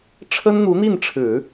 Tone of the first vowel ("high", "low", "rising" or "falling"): high